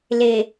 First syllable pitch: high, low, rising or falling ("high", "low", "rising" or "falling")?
low